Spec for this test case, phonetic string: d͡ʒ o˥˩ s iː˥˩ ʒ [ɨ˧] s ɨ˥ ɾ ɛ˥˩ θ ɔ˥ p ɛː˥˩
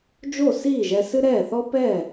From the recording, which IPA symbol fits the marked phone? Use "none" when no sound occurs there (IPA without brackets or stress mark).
ɛ˧